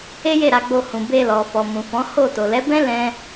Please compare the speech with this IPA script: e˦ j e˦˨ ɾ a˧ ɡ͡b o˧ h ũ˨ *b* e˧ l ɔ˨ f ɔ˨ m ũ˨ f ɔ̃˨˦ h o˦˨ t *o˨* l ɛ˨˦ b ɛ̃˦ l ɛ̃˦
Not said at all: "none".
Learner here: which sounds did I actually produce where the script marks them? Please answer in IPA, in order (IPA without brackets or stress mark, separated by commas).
b, o˨